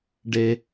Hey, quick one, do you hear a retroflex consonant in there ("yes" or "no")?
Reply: yes